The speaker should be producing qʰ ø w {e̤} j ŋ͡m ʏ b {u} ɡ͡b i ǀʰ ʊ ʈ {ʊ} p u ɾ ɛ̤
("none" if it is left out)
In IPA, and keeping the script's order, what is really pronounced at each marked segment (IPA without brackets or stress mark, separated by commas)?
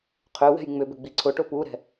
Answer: ɛ̤, ʏ, ʊ